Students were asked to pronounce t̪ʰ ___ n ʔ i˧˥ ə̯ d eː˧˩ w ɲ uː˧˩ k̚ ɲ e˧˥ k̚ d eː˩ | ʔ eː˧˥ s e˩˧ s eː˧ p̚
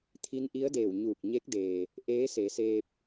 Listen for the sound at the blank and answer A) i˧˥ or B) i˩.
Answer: A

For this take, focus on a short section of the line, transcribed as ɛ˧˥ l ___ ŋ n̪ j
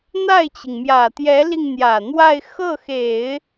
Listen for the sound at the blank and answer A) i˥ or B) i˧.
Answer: B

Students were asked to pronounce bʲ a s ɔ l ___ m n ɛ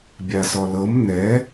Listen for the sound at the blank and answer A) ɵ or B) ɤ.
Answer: B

